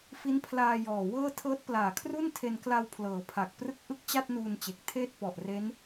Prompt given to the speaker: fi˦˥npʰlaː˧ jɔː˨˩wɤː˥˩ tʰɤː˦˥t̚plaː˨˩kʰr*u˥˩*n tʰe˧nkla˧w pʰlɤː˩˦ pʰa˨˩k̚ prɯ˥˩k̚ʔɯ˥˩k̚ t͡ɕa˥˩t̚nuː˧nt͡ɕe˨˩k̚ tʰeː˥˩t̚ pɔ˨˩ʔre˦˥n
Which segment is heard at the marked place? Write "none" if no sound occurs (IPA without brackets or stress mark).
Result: u˥˩